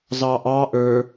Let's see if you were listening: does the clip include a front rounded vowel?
no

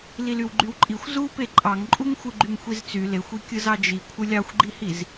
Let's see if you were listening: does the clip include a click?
yes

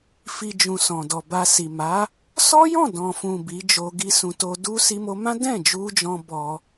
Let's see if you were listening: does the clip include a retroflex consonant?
no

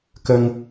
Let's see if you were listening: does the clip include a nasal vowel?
no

